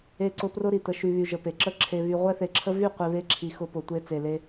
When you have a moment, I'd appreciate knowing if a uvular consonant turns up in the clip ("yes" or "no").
yes